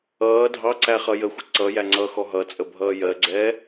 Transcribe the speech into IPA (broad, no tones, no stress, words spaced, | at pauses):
ʌː dʱɑ ǀæχʌjəxʷɪ ǀʌ jæŋ͡ǀʌxɔ ɦʌt͡sʼə bʱʌːjɜɡ͡ǀɛː